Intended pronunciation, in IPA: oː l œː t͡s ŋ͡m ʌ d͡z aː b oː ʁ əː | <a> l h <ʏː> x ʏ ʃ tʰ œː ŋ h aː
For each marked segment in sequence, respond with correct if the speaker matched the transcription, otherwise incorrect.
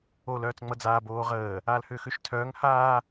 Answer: incorrect, correct

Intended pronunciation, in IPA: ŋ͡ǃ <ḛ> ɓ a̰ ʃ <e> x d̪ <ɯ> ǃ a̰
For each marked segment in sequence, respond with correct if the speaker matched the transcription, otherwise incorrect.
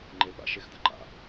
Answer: incorrect, correct, correct

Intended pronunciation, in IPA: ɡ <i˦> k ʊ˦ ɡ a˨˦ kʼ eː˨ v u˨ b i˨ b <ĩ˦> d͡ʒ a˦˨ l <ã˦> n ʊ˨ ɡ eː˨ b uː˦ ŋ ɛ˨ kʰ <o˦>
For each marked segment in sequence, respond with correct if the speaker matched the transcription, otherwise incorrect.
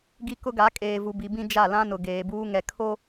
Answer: correct, correct, correct, correct

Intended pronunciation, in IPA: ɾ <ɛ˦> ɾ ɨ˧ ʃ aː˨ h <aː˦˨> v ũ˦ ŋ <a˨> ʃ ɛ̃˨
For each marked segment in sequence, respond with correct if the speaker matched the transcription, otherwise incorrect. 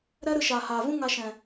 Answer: correct, incorrect, incorrect

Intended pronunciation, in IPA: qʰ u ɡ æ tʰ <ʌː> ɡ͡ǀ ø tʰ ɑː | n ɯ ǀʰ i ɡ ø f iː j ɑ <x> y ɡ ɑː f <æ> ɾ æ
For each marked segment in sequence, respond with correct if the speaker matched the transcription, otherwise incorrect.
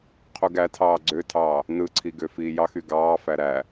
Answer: incorrect, correct, correct

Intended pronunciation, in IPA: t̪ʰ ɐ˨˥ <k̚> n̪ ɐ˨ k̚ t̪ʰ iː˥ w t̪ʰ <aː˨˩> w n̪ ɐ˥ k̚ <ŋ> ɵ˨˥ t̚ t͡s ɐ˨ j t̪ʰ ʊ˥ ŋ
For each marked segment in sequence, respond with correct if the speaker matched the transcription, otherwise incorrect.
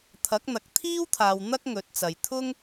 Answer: correct, incorrect, correct

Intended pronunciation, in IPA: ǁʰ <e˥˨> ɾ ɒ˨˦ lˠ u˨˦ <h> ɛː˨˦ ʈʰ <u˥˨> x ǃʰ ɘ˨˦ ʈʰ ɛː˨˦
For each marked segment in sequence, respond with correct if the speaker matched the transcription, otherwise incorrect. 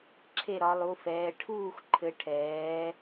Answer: correct, incorrect, incorrect

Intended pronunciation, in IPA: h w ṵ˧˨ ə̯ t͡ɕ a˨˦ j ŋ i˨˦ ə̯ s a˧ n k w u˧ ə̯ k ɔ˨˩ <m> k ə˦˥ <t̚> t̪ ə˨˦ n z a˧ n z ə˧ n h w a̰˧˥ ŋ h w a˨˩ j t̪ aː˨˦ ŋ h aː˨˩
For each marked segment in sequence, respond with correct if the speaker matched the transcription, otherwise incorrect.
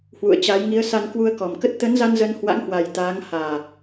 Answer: correct, correct

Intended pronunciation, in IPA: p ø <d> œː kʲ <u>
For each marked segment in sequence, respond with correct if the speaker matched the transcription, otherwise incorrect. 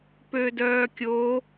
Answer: correct, incorrect

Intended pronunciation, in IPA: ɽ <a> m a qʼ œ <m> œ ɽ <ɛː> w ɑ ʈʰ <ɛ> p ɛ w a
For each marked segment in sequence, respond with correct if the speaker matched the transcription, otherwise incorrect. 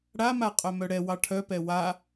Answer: correct, correct, incorrect, incorrect

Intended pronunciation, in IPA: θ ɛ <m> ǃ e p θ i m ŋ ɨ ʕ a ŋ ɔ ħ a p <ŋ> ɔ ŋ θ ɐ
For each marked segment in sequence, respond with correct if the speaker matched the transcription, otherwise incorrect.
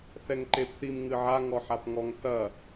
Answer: incorrect, correct

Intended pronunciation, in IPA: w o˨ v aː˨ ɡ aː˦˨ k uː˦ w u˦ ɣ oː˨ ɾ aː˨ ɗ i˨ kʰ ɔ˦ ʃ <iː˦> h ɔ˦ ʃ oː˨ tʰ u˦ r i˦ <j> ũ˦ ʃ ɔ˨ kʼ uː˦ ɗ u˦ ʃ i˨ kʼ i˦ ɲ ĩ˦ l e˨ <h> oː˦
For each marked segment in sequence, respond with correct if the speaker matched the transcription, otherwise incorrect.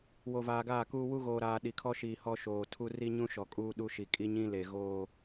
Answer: incorrect, incorrect, incorrect

